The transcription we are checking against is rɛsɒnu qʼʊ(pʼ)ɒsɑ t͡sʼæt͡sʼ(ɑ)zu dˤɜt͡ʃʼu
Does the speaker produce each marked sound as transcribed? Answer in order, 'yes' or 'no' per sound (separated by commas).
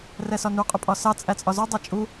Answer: yes, no